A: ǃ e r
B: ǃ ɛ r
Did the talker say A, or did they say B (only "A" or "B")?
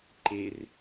A